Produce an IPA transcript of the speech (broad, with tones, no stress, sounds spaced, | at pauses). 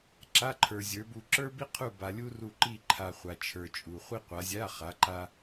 ǁ a˧˥˧ ǃʰ ə˞˨ zʲ ə˞˨˦ b u˦˨ ǁ ə˞˥ b i˥ qʰ u˦˨ b a˨ lʲ u˥ r u˦˨ ǃ i˦˨ ǃʰ a˨ χʷ a˨ t͡ʃʰ ə˞˨ t͡ʃʼ u˨ χʷ i˥ qʷ a˨˦ zʲ a˧˥˧ χ a˨˦ ǃ a˥